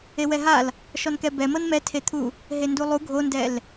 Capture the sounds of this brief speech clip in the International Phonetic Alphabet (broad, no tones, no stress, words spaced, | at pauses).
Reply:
ewɛɦal | ʃɔnkɛbɛmɤn mɛtʰet̪ʰu | ɦendulˠu ɡʱondɛl